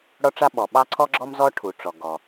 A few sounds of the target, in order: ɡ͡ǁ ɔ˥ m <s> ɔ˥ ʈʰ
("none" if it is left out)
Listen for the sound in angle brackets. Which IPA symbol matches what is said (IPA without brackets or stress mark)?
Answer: z